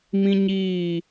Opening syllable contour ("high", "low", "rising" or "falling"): high